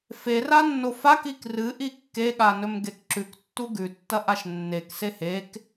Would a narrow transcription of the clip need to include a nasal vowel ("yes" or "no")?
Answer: no